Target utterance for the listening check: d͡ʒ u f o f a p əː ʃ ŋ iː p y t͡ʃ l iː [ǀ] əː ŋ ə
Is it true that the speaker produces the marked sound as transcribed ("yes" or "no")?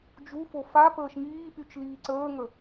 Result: yes